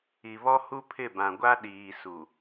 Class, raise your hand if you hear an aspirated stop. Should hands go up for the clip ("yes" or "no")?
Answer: yes